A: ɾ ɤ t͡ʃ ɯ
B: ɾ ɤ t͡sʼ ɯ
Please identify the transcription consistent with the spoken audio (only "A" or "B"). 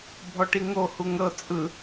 B